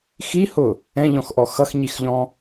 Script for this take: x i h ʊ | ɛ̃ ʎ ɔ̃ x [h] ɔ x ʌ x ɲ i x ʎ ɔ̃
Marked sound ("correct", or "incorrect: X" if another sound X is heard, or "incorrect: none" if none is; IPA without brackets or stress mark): incorrect: ʔ